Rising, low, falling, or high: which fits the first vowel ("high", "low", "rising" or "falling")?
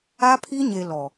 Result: high